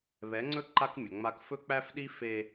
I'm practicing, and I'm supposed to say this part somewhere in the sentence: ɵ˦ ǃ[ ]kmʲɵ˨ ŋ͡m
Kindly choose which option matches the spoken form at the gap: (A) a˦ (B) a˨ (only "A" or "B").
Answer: A